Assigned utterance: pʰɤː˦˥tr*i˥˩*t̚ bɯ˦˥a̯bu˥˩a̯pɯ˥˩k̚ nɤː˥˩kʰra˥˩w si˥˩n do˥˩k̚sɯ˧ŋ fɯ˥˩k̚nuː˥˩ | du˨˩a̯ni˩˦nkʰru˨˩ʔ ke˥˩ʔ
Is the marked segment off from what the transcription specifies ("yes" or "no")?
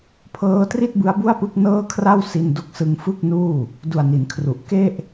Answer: no